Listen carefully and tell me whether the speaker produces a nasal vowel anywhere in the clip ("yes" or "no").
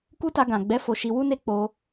yes